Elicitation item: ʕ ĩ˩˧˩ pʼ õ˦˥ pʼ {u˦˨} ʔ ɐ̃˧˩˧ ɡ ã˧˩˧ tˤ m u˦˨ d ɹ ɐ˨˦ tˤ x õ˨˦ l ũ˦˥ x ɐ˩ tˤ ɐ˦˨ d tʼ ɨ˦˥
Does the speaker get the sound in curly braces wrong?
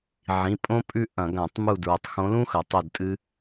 yes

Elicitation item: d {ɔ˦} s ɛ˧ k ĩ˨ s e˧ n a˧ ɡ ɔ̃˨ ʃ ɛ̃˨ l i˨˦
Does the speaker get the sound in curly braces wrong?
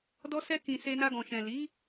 yes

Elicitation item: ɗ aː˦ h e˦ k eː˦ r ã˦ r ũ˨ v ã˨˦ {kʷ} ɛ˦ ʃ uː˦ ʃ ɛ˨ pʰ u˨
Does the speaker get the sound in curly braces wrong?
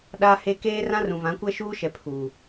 no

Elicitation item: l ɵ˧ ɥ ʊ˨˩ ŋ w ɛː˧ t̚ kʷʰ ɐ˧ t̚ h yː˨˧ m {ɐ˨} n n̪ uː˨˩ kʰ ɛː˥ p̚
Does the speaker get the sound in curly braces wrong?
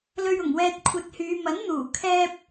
yes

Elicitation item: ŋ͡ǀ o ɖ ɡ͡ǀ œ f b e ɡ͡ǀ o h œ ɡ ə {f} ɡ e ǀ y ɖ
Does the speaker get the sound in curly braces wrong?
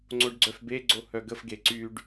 no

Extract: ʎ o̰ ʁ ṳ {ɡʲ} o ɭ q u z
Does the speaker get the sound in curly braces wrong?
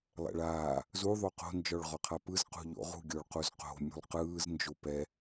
no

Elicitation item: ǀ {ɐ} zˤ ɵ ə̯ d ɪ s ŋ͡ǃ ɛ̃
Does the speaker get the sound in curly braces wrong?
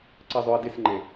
no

